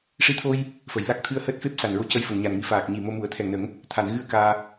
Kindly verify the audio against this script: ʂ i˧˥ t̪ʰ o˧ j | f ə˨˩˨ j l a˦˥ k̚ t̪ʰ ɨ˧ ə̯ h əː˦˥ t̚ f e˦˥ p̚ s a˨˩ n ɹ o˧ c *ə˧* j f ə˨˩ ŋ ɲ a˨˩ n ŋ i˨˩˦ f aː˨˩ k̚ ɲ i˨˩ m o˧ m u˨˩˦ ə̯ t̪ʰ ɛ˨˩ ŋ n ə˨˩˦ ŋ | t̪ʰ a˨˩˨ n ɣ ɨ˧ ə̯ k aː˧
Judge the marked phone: correct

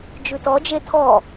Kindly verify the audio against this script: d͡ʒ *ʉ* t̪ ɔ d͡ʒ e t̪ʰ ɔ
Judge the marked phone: correct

